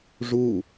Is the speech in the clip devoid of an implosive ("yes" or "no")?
yes